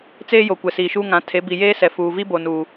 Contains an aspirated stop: yes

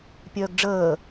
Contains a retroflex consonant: yes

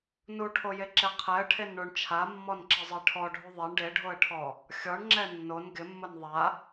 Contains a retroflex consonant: yes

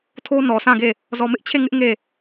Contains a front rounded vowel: no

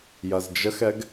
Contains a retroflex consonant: no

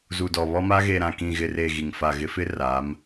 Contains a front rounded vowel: no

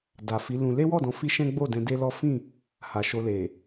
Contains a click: no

